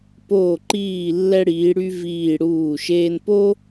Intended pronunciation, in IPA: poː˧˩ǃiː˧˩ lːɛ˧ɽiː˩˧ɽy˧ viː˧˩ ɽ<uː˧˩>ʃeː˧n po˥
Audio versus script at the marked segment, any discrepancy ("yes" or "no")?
no